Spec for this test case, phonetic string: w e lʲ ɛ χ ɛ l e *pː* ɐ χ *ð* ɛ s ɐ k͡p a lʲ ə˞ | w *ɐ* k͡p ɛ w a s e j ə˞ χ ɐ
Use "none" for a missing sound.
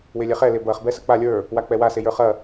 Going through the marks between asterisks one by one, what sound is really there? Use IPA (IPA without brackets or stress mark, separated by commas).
b, b, a